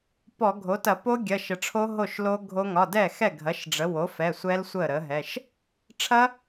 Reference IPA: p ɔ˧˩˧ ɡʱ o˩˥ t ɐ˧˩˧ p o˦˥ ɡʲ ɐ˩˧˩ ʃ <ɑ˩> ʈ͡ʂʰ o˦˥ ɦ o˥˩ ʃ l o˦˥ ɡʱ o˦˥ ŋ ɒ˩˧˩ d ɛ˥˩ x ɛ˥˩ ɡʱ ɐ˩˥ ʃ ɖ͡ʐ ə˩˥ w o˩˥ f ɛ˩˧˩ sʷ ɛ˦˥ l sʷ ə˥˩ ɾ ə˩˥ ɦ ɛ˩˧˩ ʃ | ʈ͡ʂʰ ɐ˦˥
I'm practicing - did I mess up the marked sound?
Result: yes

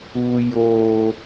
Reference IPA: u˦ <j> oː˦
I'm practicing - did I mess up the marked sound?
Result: no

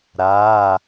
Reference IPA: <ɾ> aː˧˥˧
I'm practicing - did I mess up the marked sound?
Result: no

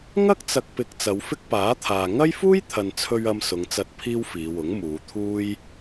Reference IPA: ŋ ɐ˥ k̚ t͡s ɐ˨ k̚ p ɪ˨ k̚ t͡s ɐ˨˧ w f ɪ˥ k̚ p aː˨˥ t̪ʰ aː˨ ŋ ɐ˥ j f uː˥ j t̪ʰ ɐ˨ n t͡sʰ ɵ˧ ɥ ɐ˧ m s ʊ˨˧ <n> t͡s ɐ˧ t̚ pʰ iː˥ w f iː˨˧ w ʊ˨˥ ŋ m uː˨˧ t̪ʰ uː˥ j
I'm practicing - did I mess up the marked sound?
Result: yes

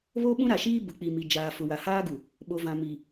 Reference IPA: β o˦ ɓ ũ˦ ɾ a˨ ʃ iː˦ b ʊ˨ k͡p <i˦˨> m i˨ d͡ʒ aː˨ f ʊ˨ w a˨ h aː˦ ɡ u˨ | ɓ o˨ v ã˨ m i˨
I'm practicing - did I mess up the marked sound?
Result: yes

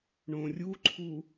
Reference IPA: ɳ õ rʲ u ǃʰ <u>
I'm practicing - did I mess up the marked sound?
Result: no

